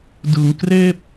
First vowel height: high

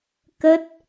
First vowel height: mid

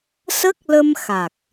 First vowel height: mid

